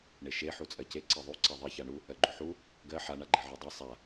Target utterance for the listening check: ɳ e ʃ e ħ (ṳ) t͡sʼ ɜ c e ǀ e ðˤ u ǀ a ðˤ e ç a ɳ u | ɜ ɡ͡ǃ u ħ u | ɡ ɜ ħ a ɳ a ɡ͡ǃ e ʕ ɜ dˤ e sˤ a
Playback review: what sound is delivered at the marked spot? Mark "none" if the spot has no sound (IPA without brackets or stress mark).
u